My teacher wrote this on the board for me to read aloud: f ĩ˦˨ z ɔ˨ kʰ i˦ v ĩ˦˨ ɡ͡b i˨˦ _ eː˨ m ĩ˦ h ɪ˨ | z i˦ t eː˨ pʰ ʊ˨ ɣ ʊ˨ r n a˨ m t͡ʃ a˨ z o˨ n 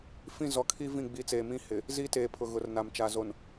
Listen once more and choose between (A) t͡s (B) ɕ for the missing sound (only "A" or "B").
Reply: A